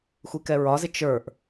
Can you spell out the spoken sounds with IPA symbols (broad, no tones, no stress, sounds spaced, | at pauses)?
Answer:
xʷ i k ɛ ɹ ɒ z ɪ t͡ʃ ə˞ ʔ